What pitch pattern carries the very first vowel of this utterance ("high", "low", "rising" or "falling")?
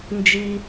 high